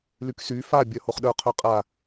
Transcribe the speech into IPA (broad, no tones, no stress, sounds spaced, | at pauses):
l y k s y f a bʲ œ h o χ ɗ œ qʰ œ qʼ a